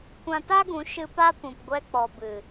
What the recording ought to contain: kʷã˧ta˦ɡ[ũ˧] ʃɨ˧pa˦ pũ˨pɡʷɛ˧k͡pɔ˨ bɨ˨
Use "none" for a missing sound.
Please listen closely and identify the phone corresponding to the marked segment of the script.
ũ˨˦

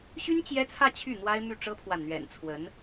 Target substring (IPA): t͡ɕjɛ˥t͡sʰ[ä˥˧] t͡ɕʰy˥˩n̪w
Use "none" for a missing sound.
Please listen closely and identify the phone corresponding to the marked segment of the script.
ä˥˧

